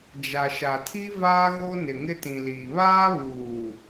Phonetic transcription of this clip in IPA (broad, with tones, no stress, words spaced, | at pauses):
d͡ʒa˨ʃa˨tʰi˦ vaː˦ɣo˦ nɪ˨ŋɪ˦tĩ˨liː˨ βaː˦βuː˨